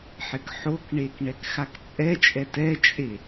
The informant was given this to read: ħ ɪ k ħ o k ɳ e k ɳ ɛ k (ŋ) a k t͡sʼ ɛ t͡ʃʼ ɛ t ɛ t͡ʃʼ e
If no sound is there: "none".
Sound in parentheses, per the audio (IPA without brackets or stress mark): x